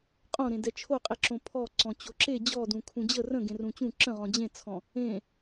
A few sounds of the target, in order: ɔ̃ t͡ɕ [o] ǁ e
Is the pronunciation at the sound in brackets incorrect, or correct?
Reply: correct